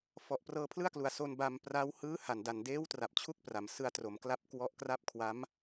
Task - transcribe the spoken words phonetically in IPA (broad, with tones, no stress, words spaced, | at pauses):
fɔ˨˩ʔprɤː˧pʰlɯ˥˩a̯klu˨˩a̯ so˧nba˧mpra˦˥w hɯː˦˥ ha˨˩n da˨˩ndeː˦˥wtra˨˩p̚ t͡ɕʰu˥˩k̚pra˨˩m sɯ˧a̯tro˩˦mkla˦˥p̚ kwɔ˦˥ʔkra˥˩p̚ kʰwa˦˥m